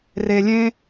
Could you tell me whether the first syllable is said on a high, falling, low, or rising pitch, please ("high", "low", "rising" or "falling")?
low